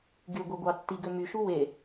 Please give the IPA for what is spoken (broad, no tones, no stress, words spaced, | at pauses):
ɡyɡʷiɡʷɑ tːiɡø myʃu we